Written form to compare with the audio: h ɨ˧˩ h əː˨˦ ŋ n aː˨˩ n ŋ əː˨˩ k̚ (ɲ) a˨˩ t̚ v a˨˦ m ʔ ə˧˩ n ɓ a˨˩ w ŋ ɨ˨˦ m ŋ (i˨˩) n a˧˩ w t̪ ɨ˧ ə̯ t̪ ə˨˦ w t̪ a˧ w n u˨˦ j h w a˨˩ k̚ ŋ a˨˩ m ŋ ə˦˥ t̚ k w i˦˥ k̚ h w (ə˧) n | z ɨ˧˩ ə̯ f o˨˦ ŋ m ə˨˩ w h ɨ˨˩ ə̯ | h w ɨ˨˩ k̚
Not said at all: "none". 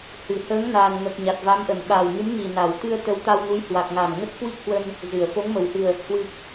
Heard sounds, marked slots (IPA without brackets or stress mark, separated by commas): ɲ, i˨˩, ə˧